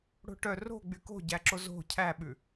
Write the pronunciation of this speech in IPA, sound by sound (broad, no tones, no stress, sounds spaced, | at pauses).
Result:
ɽ o̤ ʈ œ r o̤ ɡ͡b y k o̤ ɟ æ ǁ o z o̤ cʰ æ ɓ ʉ